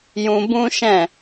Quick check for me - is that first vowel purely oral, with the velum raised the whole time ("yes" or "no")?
no